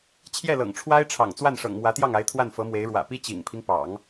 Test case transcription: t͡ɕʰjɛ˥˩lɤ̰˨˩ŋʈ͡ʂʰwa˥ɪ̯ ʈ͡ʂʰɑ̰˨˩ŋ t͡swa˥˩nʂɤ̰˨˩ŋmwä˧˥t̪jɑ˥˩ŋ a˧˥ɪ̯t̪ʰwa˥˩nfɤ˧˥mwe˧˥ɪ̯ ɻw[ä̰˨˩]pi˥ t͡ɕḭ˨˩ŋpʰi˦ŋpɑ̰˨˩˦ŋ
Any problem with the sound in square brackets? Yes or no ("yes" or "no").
no